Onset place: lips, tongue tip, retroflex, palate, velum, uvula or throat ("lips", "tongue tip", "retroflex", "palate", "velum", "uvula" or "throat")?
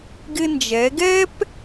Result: velum